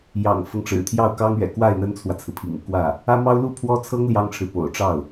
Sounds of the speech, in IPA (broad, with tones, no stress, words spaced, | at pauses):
jɑ̰˨˩ŋfɤ˦ŋ ʈ͡ʂɻ̩˨˩t̪ʰjɑ˥˩ʊ̯kɑ˥ŋɥɛ̰˨˩ kwa˥˩ɪ̯ n̪ə˥nt͡sʰwä˨t͡sʰɹ̩˩ pʰḭ˨˩ŋu˥˧kwä˥˩ | ä˥mɑ˥ʊ̯ lu˥˩pʰwɔ˥t͡sʰɤ˥ŋ ljɑ˥ŋʈ͡ʂʰɻ̩˨ po̰˨˩ʊ̯ʈ͡ʂɑ˥˩ʊ̯